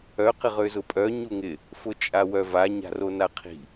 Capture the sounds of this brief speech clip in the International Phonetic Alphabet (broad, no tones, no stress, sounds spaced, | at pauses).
œ q ɪ ʁ ø z ʊ pʼ œ ɲ u ŋ ɪ | f ʊ t͡ʃʼ a w œ v a ɲ a̤ r o n a qʰ i̤